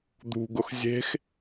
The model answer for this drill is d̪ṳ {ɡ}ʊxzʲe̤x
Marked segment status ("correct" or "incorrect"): correct